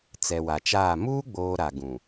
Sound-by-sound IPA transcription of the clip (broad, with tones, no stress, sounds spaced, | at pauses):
t͡s ɛ˨ w a˨ t͡ʃ aː˦˨ m uː˦ ɡ͡b oː˨ ɾ a˨ ɡ ũ˨